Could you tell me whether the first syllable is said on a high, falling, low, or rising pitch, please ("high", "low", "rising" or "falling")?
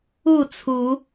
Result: falling